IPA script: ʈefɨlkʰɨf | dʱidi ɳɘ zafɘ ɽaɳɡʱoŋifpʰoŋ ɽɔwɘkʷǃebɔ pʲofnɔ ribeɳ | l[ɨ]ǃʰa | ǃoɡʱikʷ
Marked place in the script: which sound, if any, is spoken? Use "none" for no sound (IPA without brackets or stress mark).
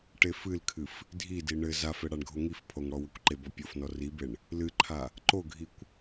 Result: ɨ